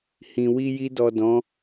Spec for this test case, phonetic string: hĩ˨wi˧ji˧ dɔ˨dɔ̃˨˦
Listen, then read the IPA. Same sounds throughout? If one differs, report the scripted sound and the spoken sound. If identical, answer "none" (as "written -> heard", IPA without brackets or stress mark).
none